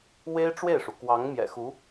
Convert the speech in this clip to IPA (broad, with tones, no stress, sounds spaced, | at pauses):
w e˥ ɪ̯ ʈ͡ʂ w e˥˩ ɪ̯ ʂ u˩ k w ɑ˧˥ ŋ m j ɛ̰˨˩ x u˧˥